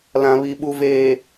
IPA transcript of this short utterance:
l ã˨ β i˨ ɓ u˨ v eː˨

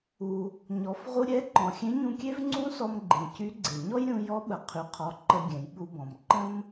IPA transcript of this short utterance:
u˩ | ɲ ɔ˩˧ f ʁ u˧ ɾʲ ɛ˧˥ ǃ ɔ̃˩ xʲ ẽ˧˥ ɲ ũ˧ kʲ e˥ v ŋ͡ǀ ũ˥ s ɔ˧ m ɡ͡ǃ ẽ˩ c y˧˥ ɡ͡ǀ e˩ ɲ ɔ˥ j ɾʲ ũ˧ j ɔ˧˥ ɓ ə˩ qʰ y˩ qʰ ɔ˩˧ ǃ ə˧ ɡʲ ɛ̃˩˧ j ɓ u˧ b ɔ̃˩ m ǃ ə̃˥ m

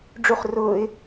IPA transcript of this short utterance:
ɖ͡ʐ u χ r ʊː ɪ̯

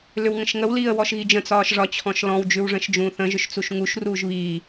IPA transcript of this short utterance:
l ʏ w ŋ ə̃ ʃ ŋ ə w l iː ə̯ w ɔ ʃ ɣ i d͡ʒ ə̃ t͡s ɒː ʃ ʐ ɒ t͡ɕʰ ɔ̃ ʃ l ɔ̃ w d͡ʒ ʉ w ʐ ə̃ ʃ d͡ʒ ũː θ ə̃ ʒ ʏ ʃ t͡s u ʃ ŋ u ʃ r uː ʒ β iː

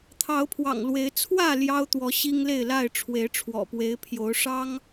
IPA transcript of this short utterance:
t̪ʰ ɑ˨˦ ʊ̯ pʰ w ɑ̰˨˩ ŋ l w e˨˦ ɪ̯ t͡sʰ w ä˥˨ l j ɑ˦ ʊ̯ t̪ w ɔ˨˦ ɕ i˦ ŋ l e˥˨ ɪ̯ l a˥˨ ɪ̯ ʈ͡ʂʰ w e˨˦ ɪ̯ ʈ͡ʂʰ w ɔ̰˨˩ p w e˨˦ ɪ̯ pʰ j o˨˦ ʊ̯ ʂ ɑ˦ ŋ

